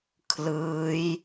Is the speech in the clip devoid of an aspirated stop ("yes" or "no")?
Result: no